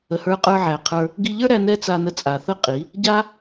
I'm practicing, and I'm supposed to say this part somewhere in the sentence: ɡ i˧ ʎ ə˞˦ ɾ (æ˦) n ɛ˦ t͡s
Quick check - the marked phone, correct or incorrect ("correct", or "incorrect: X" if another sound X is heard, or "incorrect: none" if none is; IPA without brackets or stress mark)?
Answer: incorrect: æ˧